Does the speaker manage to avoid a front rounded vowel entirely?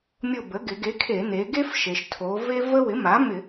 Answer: yes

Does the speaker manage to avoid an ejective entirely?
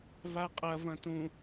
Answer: no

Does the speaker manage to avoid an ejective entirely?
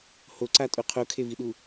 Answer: no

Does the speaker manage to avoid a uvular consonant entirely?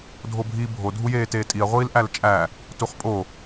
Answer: no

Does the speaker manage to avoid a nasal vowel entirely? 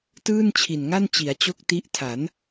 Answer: yes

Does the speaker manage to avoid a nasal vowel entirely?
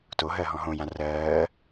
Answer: no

